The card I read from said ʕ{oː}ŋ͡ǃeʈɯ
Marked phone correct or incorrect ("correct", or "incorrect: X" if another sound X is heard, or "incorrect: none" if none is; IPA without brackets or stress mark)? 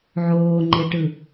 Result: correct